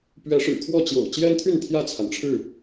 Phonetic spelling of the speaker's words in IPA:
p ɥ ɛ˨˦ ʂ ɻ̩˨˩ kʰ w ɔ˥˨ t͡ɕ j o̰˨˩ ʊ̯ t͡ɕ j ɛ˦ n t̪ʰ y˥˨ n t̪ʰ j ä˥˨ t͡sʰ a˩ n ʈ͡ʂʰ ɻ̩˥˨

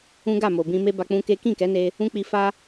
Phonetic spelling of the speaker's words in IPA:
ũ˦ ɡ a˦˨ m o˨ b ĩ˧ m e˦ b a˧ k͡p ũ˦ k e˦ k ĩ˦˨ k ɛ˨˦ n e˧ | ũ˦ k͡p i˧ f a˦

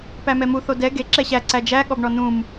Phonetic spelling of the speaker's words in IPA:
p æ m ɛ m u θ o d ɛ ɡ e ǁ ɛ ɕ æ ǀ æ d͡ʒ æ ɠ ɔ b ɳ ɔ n ũ m

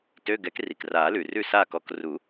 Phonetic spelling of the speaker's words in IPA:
t ø˧˥˧ ɡ ɛ˨˥ k r i˩ k r aː˨˩˦ l ʉ˩ r ʉ˥˨ s aː˥˨ k ɔ˥˨ k r u˨˩˦

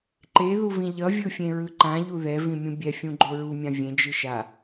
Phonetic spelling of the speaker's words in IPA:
ǃ e ð u v ĩ ʎ ʌ vʲ ɯ fʲ ẽ ɹ ɯ ǃ ã ʎ u ð ɛ v ĩ mʲ ũ bʲ ɛ fʲ ũ ɡ͡ǃ o ɹ u mʲ ã vʲ ẽ d͡ʒ ɯ ʃ a

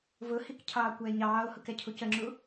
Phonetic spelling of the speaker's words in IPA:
v ʊ h i k cʰ ɑː kʷ æ e̯ ɲ ɑː o̯ h ʊ k ɛ cʰ u c ə ŋ͡ǁ u

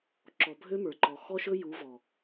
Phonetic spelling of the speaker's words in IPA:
ǁ ɔ˨ bʱ ø˦ m ə˞˨ ǃ ɔ˨ x ɔ˦ ʃ ɵ˦ j u˨˦ v ɔ˨

